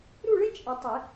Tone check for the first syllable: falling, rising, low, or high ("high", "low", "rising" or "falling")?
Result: falling